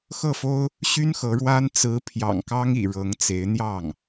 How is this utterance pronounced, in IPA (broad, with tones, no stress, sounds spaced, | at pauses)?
x ɤ˥˩ f o˥ ʊ̯ | ɕ y˥ n x ɤ˧˥ ɻ w a˥ n t͡s ɹ̩˧˥ pʰ j ɑ̰˨˩ ŋ k ɑ˥ ŋ ḭ˨˩ ɻ ɤ˧˥ ŋ t͡s e˧˥ ɪ̯ n̪ j ɑ˥˩ ŋ